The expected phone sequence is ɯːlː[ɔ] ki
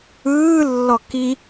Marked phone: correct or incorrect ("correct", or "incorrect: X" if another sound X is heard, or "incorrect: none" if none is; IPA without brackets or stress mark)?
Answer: correct